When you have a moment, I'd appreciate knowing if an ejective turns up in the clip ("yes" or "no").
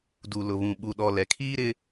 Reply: no